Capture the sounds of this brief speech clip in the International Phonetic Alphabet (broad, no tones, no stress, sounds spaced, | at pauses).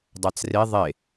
dˤ a t͡s r e ðˤ e